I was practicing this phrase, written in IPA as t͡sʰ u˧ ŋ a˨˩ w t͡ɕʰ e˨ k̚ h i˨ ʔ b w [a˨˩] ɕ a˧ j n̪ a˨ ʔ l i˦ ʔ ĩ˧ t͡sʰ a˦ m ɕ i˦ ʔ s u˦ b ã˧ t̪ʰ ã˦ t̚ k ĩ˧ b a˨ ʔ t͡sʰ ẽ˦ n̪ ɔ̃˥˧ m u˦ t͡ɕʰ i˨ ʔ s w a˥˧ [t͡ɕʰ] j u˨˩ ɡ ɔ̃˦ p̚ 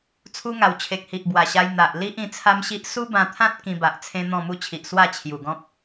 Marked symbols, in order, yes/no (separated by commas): yes, yes